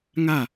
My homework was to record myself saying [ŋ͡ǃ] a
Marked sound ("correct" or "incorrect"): incorrect